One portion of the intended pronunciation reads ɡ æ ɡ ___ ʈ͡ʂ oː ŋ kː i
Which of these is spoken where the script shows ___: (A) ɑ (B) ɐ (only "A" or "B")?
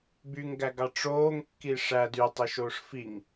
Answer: A